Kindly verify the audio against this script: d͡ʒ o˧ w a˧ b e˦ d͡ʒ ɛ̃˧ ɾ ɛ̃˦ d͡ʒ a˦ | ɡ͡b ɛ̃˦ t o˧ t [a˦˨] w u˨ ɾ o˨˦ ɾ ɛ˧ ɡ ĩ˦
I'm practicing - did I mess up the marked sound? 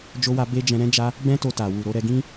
yes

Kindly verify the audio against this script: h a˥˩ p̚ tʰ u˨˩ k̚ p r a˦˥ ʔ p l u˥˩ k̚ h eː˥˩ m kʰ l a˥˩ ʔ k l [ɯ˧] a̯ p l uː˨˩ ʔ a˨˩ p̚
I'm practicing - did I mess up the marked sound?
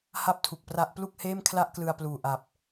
no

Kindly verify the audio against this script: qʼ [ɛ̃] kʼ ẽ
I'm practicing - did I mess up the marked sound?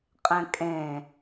no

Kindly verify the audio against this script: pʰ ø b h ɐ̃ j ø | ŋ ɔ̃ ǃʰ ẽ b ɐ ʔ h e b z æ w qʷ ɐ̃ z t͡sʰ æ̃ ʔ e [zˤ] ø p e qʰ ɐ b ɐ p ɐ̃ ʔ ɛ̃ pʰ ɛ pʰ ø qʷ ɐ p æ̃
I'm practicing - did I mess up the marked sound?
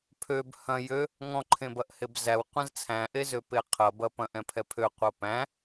yes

